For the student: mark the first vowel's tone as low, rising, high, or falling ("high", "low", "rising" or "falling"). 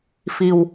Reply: low